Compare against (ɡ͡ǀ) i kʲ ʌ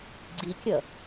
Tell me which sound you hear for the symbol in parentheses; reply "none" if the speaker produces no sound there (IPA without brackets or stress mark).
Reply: ɡ͡ǀ